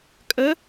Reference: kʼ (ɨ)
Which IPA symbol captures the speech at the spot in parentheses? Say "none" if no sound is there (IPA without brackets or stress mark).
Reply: ə